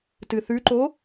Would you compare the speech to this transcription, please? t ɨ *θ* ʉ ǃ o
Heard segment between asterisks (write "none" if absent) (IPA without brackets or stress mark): θ